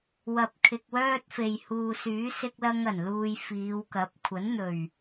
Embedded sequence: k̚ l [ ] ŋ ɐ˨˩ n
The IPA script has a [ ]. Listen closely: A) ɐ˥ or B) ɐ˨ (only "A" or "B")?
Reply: A